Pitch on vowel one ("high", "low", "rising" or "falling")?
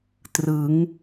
rising